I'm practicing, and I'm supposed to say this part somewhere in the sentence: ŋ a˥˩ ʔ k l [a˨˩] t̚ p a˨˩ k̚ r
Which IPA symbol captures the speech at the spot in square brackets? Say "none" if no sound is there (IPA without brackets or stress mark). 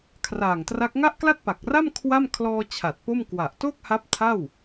a˥˩